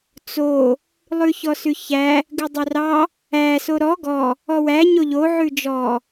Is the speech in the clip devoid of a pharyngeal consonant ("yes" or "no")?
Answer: no